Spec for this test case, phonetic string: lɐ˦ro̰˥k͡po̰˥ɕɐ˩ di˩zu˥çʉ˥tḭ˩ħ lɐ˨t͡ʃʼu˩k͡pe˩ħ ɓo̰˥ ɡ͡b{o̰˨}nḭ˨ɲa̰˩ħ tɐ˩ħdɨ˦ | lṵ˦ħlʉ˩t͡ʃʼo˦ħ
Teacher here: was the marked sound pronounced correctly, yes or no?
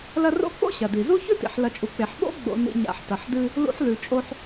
yes